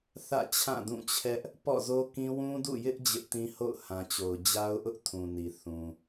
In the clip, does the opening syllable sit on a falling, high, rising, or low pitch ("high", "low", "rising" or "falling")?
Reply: falling